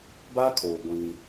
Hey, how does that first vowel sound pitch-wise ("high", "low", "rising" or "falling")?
high